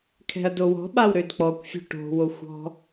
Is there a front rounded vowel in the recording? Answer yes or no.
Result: yes